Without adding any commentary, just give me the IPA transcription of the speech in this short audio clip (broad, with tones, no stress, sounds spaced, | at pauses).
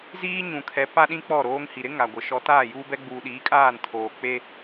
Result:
z iː˦ ɲ ũ˨ kʰ ɛ˨˦ p a˦ ɗ ĩ˦ k͡p ɔ˦˨ ɾ oː˦ ŋ h i˨ ɾ ɪ˦ ŋ a˨ ɡʷ ɪ˨ ʃ ɔ˨˦ t aː˦˨ j uː˦ b ɛ˦ ɡ͡b uː˨ ɗ iː˨˦ kʼ aː˦˨ n tʰ oː˨ k͡p e˦